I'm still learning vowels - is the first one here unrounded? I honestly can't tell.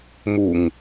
no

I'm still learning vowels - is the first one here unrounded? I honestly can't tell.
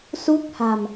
no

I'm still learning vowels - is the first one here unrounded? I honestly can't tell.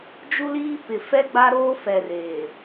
no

